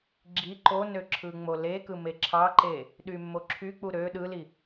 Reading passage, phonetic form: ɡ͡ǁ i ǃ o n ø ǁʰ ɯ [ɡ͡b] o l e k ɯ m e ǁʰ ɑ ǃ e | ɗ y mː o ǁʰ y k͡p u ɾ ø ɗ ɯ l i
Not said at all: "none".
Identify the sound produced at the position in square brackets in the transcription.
ŋ͡m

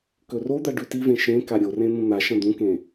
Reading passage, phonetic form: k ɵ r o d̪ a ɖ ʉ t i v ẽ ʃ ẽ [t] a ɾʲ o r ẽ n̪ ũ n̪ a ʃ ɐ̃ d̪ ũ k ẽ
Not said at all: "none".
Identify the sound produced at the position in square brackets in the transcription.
k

